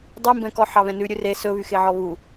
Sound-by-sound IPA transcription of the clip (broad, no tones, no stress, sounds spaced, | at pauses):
dˤ i m b ɛ̃ k ɔ ħ ɑ β ɛ̃ n ʉ ɾʲ ʉ r e s ɵ β y x e ʕ ɔ β u